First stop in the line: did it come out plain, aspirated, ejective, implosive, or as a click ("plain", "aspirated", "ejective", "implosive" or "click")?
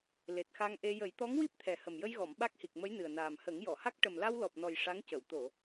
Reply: plain